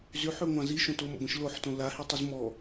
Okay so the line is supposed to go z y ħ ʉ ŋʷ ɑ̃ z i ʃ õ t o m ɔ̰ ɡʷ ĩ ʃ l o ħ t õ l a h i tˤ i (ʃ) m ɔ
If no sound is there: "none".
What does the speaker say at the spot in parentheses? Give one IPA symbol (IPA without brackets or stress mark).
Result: z